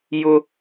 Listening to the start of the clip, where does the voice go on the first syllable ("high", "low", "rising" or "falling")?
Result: high